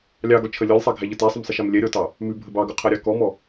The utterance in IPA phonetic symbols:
lʲɑɡɔt͡ʃʰə lʲɔlʲsˤɛɡʱæʎə tɛsˤəmsˤəʃɛm lʲɛɾʲɔtɑ | mʉbʱə bɑɡʉqʰɛɾʲɑ kɔmɔ

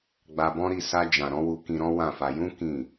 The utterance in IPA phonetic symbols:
ɡ͡ba˧bɔ̃˦ɾi˦˨ sa˧ d͡ʒã˨ɾɔ̃˨˦wu˧ kĩ˧ɾɔ̃˦ wã˦˨fa˧ jũ˦ kĩ˦˨

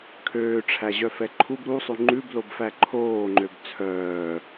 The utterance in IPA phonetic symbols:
kʰøːʈ͡ʂʰæʑœfɛ ǃʰub ɾusˤʉ ŋ͡ǃʉblobfæ ǃʰoːŋ͡ǃøb t͡sʰœː

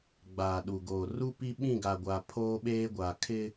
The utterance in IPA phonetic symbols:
ɡ͡baː˨ɗu˨ɡoː˨ ru˦pi˦ ɓĩ˦˨ɡa˨ɡʷa˨ pʰoː˦ɓeː˦ ɡʷa˨kʰɪ˦

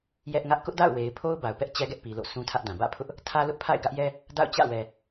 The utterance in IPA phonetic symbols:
jɛ˦ʔŋä˦ʔ kʊ˦ʔda̰˦˨ʊ̯we˨ɪ̯pʰo˦ʊ̯ ba˨ʊ̯pɛ˦ʔt͡ɕɛ˦ɡɛ˦ʔ pi˨lo̰˦˨ sũ˦tʰä˦ʔdã˨ bä̰˦˨pʰʊ˦ʔ | tʰä˦lʊ˦ʔpʰa̰˦˨ɪ̯ ɡä˦ʔjɛ˦ | da̰˦˨ʊ̯t͡ɕä̰˦˨wɛ˨

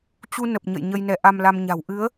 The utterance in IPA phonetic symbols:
t͡ɕu˧nə˨˩p̚ɲə̰˧˨j ɲə˧jnɛ˨˦ʔa˧mla˧m ɲa̤˨˩wʔɨ˨˦ə̯

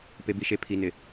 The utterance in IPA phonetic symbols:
pe˨bi˨ʃe˨ pʰi˨nɪ˨

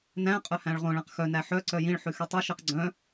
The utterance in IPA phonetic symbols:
næ̃ qʼœhæ̃ɭʁõ ɭæ̃qxœ næħœ ǀœjĩɭ ħʉxytˤʉ ʃiqɡ͡ǀœ̃

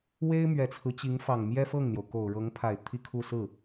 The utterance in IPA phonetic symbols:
we˥ɪ̯ mɥɛ˨˩t͡sʰɹ̩˦t͡ɕi˧˥ŋ fɑ˨˩ŋmjɛ˥fɤ˥˩ŋn̪jo˩ʊ̯ ko˨˩ʊ̯ ɻɤ˧˥ŋ pʰa˨˩ɪ̯ t̪ʰi˥˧ kʰu˥˧ sɹ̩˥˩

